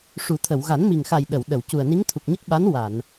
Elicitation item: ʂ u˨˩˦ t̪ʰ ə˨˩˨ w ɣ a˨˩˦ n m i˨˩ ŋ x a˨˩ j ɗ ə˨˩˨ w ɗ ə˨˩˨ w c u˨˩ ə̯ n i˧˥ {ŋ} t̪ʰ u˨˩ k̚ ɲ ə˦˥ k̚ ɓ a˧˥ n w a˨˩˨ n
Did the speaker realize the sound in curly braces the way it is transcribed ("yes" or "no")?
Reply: yes